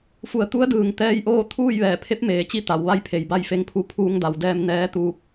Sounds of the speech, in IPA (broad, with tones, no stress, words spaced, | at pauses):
fu˩˧ə̯t̪u˧˥ə̯dɯː˩ŋ t̪ɛː˧˥jʔoː˥˨ t̪ʰuː˥˨jʋɛː˧˩pʰe˧˥p̚ meː˩t͡ɕi˥˨ t̪a˩˧wʋa˥˨jpʰe˩jba˥˨j fe˧ŋpʰu˧˥ pʰuː˧ŋda˩˧wdɛː˧m nɛː˧˥t̪uː˧˥p̚